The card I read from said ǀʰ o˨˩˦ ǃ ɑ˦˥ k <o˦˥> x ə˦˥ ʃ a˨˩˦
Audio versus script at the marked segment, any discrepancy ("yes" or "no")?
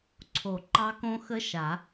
yes